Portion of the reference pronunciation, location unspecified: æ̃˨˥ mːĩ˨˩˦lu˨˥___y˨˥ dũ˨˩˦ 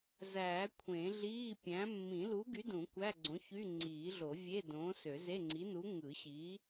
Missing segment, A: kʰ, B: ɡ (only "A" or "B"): B